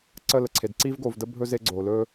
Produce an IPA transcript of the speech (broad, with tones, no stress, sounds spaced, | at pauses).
ǀ ə˦˨ l ə˨ ǀʰ e˨ d ǀ i˦ v ɡ o˨ v d ə˦ bʱ ɵ˦ z e˦ ɡ͡ǀ o˨ l ɵ˦